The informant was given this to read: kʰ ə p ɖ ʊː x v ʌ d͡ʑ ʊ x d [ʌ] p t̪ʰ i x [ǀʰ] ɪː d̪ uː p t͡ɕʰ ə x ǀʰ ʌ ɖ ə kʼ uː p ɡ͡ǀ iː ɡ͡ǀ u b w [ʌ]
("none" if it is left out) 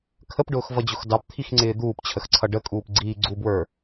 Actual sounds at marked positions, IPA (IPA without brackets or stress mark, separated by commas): ɑ, ŋ͡ǀ, ə˞